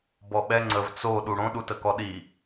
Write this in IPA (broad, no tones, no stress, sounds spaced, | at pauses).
b ɔ ɓ ɛ ŋ͡ǀ ə v t͡s o ɗ u ɽ õ ɗ u t ə k ɔ ɗ i